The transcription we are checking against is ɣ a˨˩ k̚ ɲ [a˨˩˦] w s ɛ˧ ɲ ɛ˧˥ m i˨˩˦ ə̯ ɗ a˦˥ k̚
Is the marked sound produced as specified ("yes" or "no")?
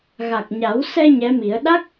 yes